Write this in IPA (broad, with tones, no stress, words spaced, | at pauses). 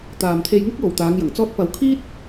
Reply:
t̪aː˨mt̪ʰe˧jŋʊ˥k̚ jo˨wt̪aː˨˧ŋjɐ˨˩ŋ t͡sɔː˧t̚pɐ˨w kʰiː˥t̚